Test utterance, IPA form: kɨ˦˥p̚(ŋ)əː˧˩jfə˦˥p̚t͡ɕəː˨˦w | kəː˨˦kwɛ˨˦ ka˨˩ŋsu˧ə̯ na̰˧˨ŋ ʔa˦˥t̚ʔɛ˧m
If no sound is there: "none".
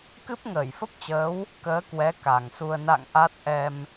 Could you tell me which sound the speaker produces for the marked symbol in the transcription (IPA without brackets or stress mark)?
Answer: ŋ